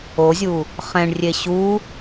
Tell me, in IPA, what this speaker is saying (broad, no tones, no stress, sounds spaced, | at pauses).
o zʲ u | χ ɛ̃ ɳ rʲ e ɕ u